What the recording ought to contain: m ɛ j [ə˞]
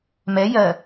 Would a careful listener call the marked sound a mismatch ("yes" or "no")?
yes